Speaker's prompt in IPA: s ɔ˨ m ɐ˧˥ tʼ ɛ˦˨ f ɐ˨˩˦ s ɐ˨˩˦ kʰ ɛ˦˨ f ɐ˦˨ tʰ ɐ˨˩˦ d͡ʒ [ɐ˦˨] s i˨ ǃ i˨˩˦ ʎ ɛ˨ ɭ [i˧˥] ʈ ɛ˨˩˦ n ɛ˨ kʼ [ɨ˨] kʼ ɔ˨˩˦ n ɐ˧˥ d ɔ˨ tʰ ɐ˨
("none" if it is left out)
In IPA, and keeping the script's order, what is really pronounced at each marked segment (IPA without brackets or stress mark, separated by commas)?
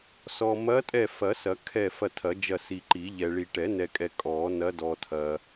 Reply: ɐ˦˨, i˨, ɛ˨